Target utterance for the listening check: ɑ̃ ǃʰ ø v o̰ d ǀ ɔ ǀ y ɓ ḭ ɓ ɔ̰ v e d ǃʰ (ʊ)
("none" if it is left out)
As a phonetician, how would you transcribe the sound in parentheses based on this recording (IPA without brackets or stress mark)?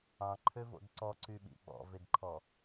ɔ